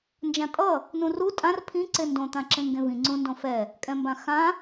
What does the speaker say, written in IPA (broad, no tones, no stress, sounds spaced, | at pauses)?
n d͡ʒ ã tʼ ʌ | n ũ r u tʼ ã r pʰ ĩ ǀ e n d õ t̪ ã ǁ ẽ ŋ ɡ ẽ v ĩ ŋ͡ǀ ũ n d õ f ɛ | kʼ ɛ̃ m b ã x ã